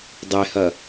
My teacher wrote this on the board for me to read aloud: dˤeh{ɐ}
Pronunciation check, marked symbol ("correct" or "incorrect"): correct